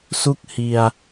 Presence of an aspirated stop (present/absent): absent